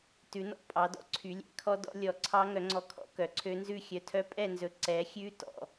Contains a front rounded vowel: yes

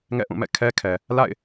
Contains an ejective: no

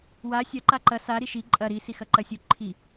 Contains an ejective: yes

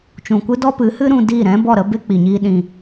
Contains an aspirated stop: no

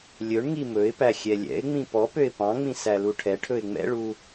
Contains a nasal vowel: yes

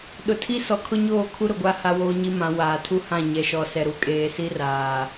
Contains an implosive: yes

